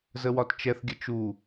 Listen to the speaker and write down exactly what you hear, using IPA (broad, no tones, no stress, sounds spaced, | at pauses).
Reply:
z ə w ɒ t t͡ʃ ɛ θ ɡʲ ə t͡ʃ u